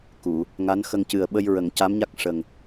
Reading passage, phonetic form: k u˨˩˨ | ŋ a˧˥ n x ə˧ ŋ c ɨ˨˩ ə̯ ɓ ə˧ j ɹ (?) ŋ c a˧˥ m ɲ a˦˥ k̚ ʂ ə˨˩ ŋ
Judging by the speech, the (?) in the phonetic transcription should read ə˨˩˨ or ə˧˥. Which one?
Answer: ə˨˩˨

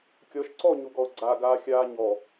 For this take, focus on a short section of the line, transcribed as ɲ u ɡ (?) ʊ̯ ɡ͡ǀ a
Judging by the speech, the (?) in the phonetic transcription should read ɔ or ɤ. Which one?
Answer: ɔ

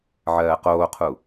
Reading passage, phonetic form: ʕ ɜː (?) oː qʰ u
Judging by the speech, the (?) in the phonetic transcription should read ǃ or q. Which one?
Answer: q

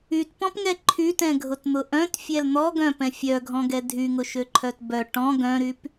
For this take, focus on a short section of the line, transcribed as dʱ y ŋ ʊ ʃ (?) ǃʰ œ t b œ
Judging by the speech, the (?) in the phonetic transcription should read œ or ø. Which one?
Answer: ø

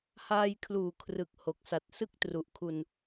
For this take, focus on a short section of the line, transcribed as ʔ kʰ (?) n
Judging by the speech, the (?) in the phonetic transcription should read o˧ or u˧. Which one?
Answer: u˧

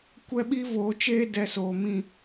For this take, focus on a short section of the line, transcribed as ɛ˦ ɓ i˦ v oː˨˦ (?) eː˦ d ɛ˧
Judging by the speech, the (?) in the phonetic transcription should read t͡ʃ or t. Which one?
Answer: t͡ʃ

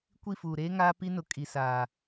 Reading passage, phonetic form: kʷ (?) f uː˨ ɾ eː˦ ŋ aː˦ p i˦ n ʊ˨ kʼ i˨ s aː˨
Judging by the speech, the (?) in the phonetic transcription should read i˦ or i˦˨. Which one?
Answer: i˦˨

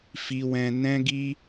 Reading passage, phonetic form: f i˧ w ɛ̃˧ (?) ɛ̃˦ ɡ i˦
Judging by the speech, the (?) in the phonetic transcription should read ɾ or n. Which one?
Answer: n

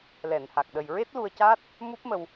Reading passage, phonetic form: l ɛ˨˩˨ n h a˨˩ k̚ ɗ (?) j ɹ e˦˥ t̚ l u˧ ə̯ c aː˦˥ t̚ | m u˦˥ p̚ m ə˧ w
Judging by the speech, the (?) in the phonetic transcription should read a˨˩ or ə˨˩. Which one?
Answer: ə˨˩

